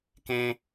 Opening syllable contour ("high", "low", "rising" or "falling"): high